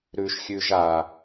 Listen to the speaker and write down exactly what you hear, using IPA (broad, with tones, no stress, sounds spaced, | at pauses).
ɾ ʉ˨ ʃ xʲ ʉ˨ ʒ a˨